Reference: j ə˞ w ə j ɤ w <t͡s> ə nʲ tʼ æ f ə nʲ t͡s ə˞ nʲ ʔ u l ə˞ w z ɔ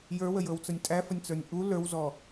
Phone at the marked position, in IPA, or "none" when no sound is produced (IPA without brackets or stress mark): t͡s